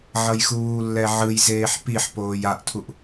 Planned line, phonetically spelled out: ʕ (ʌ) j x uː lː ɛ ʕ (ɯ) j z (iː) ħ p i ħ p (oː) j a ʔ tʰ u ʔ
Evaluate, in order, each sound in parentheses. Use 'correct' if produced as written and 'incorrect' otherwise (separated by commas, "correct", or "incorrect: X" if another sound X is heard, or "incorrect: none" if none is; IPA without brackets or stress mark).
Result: correct, correct, incorrect: eː, correct